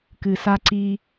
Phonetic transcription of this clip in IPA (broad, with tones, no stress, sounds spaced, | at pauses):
k ɨ˨ s a˦ ǀ i˦